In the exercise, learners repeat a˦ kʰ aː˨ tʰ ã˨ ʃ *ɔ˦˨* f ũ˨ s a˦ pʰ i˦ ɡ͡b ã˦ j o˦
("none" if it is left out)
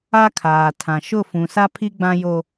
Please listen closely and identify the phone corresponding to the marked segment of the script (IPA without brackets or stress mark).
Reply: ʊ˦˨